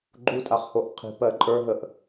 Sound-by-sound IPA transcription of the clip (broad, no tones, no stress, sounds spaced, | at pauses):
ɡ͡ǃ u tʼ a χ h o ʔ qʰ i̤ p ɜ ǃʼ ə˞ ɦ ə ʔ